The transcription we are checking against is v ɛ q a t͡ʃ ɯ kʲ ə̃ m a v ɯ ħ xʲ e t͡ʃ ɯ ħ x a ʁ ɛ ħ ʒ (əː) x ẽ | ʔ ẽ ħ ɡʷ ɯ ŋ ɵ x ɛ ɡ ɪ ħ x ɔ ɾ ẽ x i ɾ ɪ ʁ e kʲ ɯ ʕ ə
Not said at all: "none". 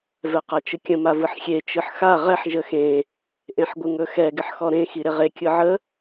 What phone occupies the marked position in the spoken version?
ə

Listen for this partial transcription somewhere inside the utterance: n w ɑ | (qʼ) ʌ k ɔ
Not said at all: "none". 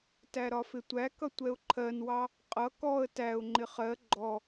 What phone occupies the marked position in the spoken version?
qʼ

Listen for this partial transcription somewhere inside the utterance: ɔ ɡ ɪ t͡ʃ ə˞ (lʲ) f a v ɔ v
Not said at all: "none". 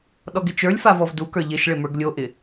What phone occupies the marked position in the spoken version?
lʲ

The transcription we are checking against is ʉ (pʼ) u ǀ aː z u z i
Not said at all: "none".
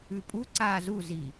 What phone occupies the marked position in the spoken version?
pʼ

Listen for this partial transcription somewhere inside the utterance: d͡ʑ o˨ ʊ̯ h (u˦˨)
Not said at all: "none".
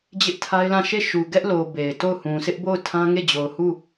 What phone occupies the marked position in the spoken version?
u˦˨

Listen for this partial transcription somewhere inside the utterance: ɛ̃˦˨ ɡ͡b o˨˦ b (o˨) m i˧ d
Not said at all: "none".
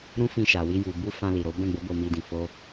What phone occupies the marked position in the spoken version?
o˧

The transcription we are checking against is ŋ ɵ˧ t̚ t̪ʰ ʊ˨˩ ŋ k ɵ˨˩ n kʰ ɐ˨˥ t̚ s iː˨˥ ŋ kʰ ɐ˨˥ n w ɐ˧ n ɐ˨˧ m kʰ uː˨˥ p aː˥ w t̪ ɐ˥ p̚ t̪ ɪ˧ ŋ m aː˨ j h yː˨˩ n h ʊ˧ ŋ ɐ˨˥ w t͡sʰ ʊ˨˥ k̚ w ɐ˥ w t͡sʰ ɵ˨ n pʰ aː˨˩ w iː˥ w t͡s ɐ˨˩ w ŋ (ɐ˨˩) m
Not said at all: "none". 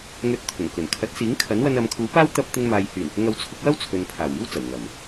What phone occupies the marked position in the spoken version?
ɐ˨˩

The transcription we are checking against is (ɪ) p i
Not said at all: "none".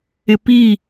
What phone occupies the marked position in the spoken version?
ɪ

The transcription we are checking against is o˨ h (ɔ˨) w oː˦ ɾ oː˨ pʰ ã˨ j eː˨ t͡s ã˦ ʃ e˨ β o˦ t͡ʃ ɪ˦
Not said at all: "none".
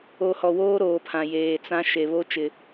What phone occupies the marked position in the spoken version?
ɔ˨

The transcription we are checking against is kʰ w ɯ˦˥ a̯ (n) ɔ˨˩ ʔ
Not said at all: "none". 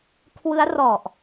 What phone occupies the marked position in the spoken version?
r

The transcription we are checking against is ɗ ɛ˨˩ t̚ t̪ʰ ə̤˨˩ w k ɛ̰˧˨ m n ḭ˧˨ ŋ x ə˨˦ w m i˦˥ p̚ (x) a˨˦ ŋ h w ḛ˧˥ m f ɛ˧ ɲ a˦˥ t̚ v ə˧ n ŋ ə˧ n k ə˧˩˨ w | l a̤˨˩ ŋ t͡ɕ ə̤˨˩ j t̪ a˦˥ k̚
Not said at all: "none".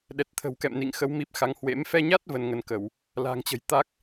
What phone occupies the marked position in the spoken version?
x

